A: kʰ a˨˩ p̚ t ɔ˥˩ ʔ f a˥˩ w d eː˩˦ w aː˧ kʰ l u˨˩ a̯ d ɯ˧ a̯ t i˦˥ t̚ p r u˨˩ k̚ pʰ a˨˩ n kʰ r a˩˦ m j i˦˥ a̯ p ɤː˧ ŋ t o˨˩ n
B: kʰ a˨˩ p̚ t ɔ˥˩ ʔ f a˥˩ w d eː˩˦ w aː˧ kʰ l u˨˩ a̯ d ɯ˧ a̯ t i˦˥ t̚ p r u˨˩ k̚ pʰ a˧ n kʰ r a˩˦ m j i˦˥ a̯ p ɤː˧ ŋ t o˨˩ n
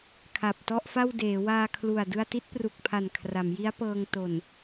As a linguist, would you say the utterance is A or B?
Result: A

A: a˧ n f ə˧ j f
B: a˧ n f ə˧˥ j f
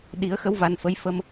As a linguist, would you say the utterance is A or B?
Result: B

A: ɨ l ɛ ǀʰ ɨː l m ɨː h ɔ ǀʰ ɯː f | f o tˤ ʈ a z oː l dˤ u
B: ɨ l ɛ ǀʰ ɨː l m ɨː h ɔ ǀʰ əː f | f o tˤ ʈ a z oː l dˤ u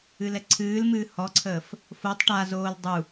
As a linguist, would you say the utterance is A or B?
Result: B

